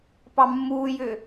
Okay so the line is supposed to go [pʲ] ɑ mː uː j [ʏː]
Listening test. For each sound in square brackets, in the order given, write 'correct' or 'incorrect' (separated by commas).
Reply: incorrect, correct